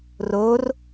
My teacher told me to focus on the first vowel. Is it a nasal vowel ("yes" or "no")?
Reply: no